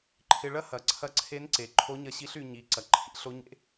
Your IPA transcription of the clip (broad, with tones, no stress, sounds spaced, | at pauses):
ǃʰ ɪ˧ ɭ ɐ˥ h ɐ˩˧ ǀʰ ɐ˧˥ ǀʰ e˧˥ n ǀ e˩ ǃʰ o˧˥ ɲ ɐ˧ ɕ i˧˥ ɬ y˩˧ ɲ i˩˧ ǀ ɐ˩ ǃʰ ḭ˥ ɬ o˧˥ ɲ ḛ˧˥